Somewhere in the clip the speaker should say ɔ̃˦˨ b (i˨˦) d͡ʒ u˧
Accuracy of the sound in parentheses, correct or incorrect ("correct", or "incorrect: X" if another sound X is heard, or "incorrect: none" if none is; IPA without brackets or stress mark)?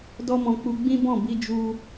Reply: incorrect: i˧